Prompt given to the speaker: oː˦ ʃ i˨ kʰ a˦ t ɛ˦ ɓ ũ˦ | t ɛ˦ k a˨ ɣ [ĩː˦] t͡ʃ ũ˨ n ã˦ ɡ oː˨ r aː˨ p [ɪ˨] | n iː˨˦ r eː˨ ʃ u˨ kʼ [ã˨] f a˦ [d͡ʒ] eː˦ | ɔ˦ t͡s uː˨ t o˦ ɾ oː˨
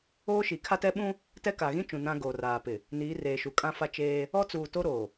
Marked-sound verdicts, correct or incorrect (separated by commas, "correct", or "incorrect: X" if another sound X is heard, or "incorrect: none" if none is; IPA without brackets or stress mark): incorrect: ĩ˦, correct, incorrect: ã˦, incorrect: t͡ʃ